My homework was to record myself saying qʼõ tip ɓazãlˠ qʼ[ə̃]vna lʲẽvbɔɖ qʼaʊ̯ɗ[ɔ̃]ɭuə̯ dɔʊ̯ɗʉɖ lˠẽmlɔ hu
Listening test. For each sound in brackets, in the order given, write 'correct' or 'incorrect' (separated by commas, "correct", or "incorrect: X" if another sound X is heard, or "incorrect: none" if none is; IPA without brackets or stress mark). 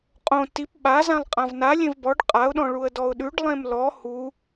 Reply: incorrect: ã, correct